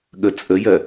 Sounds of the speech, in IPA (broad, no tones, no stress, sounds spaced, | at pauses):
ɠ ə t͡sʼ ə j ɜ